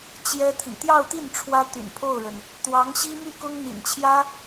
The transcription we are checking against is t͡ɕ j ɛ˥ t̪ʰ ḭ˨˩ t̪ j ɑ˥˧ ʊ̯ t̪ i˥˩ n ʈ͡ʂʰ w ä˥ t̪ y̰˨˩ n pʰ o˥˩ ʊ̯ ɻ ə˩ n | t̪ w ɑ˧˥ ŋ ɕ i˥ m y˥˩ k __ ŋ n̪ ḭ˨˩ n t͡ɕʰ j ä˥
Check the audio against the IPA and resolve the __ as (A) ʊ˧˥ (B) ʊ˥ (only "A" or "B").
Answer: B